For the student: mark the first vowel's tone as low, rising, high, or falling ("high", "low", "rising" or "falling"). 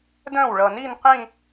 falling